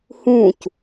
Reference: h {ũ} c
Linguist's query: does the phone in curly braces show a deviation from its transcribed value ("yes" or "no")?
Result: no